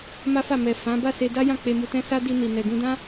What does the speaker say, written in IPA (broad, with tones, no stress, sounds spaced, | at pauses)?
m a˦ f a˦˨ m ɛ˨ f ã˨˦ b a˦˨ s e˧ d a˦ j ã˦˨ k͡p e˧ m u˧ t ɛ̃˦ s a˦ d i˧ n i˨ n ɛ˨ ɡ ũ˧ d ã˦